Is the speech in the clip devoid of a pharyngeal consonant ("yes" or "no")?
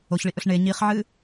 no